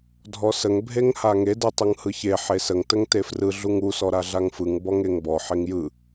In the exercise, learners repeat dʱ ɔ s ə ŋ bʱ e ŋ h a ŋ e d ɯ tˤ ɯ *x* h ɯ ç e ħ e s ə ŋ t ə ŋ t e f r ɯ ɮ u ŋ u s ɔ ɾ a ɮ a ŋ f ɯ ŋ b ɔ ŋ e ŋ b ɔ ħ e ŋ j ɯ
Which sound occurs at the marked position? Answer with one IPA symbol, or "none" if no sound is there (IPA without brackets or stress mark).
ŋ